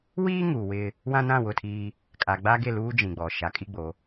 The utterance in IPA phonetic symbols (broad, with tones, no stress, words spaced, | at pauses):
wiː˦ ŋu˨wɪ˦ | wã˦nã˦˨wʊ˦˨tʰiː˦ | kʼa˨ ɡ͡ba˦ɡe˦˨luː˦ d͡ʒĩ˨ɡ͡bɔ˨ ʃa˨˦kʼi˦ɡ͡bo˨˦